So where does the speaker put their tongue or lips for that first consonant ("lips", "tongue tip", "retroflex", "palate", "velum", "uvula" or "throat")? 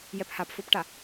palate